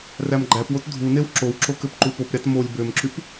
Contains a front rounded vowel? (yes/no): yes